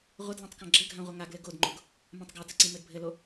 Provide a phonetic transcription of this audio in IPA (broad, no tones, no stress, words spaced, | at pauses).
ʁʷəd lãtˤkãɡ͡ǁɘɡʱã ʁʷɘŋaɡlɘ ɡodŋ͡ǃoɡ | mãtˤɡatə ǀĩmɘdbʱɘlo